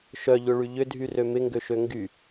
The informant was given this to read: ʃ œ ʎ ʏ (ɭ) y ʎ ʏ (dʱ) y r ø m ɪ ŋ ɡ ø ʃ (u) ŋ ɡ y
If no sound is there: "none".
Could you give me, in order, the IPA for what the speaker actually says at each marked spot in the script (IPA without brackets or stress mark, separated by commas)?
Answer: ɭ, dʱ, ø